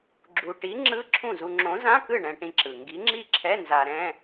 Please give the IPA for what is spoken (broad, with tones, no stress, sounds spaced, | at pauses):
ɡ͡ǁ u˧ ʈ i˨˥ ŋ͡ǁ ɯ˧˥˧ ǁʰ ũ˥˩ z u˧ ŋ͡ǁ õ˨˥ z ã˧˥˧ k ɯ˥˩ ɳ ɛ̃˧ ʈ ĩ˧ ǁ ɯ˩ ŋ ɡ i˨˥ ŋ͡ǁ i˥˩ ǁʰ ɛ˧˥˧ n z a˧ ɾ ɛ̃˧˥˧